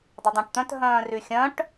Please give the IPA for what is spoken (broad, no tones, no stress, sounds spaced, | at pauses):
dˤ ʊ dˤ ã ʈ t̪ œ̃ t ɦ œ̃ː r y xʲ œ̃ ʈ